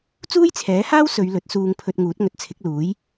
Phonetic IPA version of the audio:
t͡suː˥jt͡sʰɛː˨˥haː˥w sɵ˨˧ɥ lɵ˨˥t̚suː˧ŋpʰɵ˧t̚ ŋuː˨˥t̚ŋɵ˨t̚t͡sʰɪ˨˥k̚ luː˨˥j

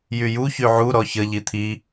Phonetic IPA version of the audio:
jyju çyʕu ɾɔçə ʎit̪ʰi

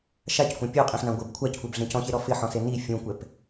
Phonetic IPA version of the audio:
ʃackʷã pʲoqʼẽħnã ɡʷɪb kʷʰackʷɛbɮẽ cɔ̃çeɾɔ fɪħɔ̃se ni fʲũkʷɛp

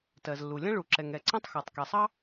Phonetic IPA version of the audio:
tɜ˩zlːu˩lʲɐ̃˥ ɭu˩ǁɛ˩ŋ ɛ˩ǀɐ̃˥tˤxɐ˩tˤ kɛ˩sˤɑ˥

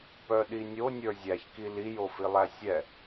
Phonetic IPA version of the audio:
pœɗinʲo nʲə˞zʲæçki lijo filˠæsʲɛ

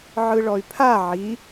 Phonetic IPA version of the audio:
ʕɯɭɔy̯pʰa ʕi

